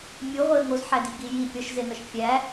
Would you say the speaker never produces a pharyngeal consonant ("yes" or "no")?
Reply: no